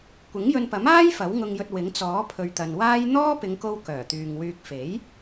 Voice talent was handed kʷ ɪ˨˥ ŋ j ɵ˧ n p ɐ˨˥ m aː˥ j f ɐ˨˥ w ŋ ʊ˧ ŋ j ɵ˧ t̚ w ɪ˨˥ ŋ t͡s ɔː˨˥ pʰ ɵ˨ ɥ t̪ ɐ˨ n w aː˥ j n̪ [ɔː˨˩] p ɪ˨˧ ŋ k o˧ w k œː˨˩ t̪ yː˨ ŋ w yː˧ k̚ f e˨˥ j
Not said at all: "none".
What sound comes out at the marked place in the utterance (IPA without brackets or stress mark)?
ɔː˥